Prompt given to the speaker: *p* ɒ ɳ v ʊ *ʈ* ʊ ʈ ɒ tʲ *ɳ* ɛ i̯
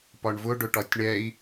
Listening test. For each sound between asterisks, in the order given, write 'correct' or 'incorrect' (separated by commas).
correct, incorrect, correct